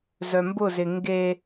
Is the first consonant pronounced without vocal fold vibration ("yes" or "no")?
no